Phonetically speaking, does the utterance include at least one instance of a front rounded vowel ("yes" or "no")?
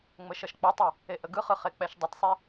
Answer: no